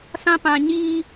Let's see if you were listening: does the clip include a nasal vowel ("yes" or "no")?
yes